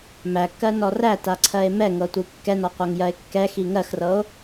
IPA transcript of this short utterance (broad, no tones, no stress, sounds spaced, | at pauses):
m æ kː ɜ n ɔ r æ t a ǀʰ ɜ e̯ m ɛ ŋ ɤ tʷ i kː ɛ n ɔ qʷ æ ŋ j ɜ e̯ kː ɛ x i ŋ ɜ x r ɤ o̯